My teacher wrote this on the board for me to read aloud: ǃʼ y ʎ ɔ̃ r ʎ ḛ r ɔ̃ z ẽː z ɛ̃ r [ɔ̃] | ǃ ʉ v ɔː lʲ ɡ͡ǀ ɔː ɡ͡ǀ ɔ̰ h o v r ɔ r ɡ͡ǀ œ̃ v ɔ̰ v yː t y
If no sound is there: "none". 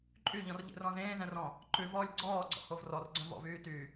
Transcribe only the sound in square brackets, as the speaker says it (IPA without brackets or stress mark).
ɔ̃